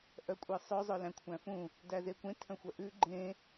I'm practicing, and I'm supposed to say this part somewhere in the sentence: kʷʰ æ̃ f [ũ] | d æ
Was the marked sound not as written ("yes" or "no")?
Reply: no